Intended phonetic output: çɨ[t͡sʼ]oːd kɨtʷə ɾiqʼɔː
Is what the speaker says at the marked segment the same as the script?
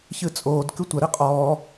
yes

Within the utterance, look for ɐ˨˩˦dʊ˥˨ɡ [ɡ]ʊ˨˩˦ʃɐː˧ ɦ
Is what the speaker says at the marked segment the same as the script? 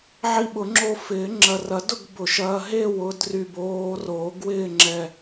no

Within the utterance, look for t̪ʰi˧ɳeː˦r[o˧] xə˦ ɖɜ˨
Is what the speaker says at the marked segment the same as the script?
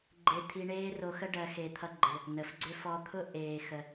yes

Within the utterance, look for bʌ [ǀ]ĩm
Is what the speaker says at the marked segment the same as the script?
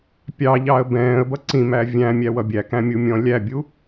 yes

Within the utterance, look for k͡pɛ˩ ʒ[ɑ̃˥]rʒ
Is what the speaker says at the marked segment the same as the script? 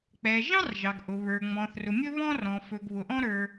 yes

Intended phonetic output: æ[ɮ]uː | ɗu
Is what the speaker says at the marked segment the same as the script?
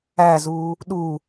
no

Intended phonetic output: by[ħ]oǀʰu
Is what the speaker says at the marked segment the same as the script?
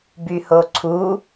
no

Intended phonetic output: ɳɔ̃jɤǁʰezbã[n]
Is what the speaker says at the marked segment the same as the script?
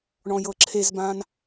yes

